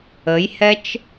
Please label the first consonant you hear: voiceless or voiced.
voiced